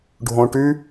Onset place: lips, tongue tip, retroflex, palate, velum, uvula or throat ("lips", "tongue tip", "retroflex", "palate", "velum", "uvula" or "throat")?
retroflex